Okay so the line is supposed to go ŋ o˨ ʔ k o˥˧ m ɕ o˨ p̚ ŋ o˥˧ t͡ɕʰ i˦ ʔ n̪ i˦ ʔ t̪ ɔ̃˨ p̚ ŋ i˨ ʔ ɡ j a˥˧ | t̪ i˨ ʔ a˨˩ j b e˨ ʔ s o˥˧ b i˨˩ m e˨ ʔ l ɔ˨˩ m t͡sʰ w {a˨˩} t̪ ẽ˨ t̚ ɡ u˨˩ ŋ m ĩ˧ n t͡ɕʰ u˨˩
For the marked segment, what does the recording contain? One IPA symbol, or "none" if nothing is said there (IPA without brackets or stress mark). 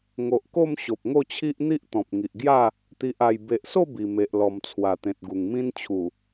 a˨˩